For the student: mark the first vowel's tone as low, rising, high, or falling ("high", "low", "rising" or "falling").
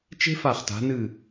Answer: high